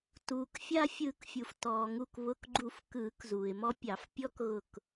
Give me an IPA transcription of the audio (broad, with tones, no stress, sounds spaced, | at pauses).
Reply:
t uː˩ k fʲ a˧ fʲ ɯ˨˩˦ k fʲ u˩ f t ɔː˩ ŋ u˧˩ k β ʊ˩˧˩ k ɡ͡ǃ u˨˩˦ f k ɯː˨˩˦ k z uː˩ ɪ̯ m ɔ˧ pʲ ɑ˨˩˦ f pʲ ɔ˦˥ k ɣ ʊ˧˩ k